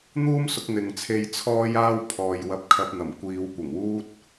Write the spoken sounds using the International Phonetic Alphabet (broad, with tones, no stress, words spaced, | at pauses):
n̪uː˥msʊ˧k̚ n̪ɪ˨ŋt͡sʰe˧j t͡sʰɔː˥jaː˥w pʰɔː˨j wɐ˧p̚kʰɐ˧p̚n̪ɐ˨˩m kʷiː˨˧wkʷɪ˨˩ŋwuː˥t̚